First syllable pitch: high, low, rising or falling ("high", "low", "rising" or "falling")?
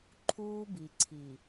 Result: high